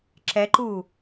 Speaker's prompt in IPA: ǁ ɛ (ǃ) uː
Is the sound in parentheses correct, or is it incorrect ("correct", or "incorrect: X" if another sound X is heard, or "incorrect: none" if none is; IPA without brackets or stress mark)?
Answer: correct